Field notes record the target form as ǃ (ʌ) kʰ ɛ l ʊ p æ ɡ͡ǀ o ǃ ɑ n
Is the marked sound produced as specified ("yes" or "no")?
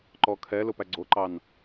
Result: no